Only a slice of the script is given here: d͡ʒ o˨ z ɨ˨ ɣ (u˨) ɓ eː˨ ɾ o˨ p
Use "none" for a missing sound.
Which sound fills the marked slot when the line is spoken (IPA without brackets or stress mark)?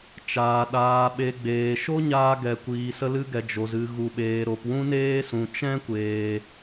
u˨